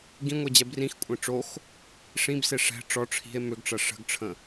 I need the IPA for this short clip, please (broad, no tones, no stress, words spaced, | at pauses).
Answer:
ɡĩŋʷed͡ʑɛ brĩxkʷʼẽ ʈ͡ʂox | ʂĩbse ʂɛ̤ ʈ͡ʂɔ ʈ͡ʂʰi̤e̯ mʏɡʈ͡ʂɐ ʂə̤ɡʈ͡ʂʰə̃